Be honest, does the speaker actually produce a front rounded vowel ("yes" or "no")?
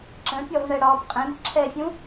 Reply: no